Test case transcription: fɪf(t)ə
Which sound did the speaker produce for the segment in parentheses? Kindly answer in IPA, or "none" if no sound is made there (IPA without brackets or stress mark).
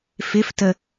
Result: t